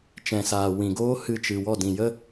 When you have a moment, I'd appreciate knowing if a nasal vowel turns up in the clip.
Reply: yes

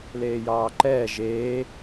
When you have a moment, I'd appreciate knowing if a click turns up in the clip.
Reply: yes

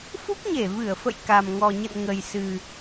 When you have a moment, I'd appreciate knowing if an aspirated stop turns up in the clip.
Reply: no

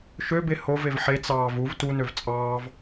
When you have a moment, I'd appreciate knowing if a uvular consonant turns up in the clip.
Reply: no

